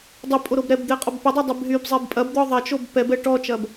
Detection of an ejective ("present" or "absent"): present